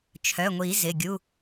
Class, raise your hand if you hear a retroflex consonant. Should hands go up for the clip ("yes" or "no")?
no